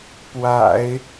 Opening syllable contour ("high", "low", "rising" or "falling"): low